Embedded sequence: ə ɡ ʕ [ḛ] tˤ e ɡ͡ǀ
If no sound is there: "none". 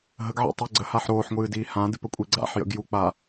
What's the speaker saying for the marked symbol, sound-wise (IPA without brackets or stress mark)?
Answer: ḭ